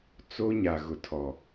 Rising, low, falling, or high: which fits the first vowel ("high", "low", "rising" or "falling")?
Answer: high